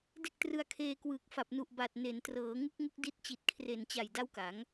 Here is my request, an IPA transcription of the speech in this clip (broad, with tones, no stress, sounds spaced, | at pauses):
d e˥˩ k̚ t r ɯ˧ a̯ kʰ eː˧ k w ɯː˨˩ k̚ f a˨˩ p̚ n u˨˩ ʔ b a˨˩ t̚ n e˩˦ n t r ɤː˩˦ ŋ ɯ˦˥ k̚ ŋ u˦˥ k̚ d i˦˥ t̚ t͡ɕ i˨˩ t̚ kʰ r e˨˩ n t͡ɕ a˨˩ j d a˥˩ w k a˩˦ ŋ